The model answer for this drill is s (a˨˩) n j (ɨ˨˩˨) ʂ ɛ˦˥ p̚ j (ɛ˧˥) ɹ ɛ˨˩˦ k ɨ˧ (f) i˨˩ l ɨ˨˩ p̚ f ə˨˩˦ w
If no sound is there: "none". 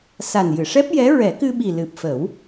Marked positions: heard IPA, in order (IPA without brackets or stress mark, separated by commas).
a˨˩, ɨ˨˩˨, ɛ˧˥, ɓ